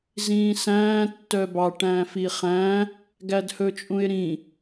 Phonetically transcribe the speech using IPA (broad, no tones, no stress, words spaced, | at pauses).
zĩːsæ̃ː tːœbɑ ʈæ̃ːfiχæ̃ | ɡædhɵt͡ʃʼũɪ̯ɾĩ